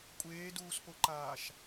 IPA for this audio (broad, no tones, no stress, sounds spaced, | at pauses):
kʷʼ eː d uː s p o ǃ aː ʃ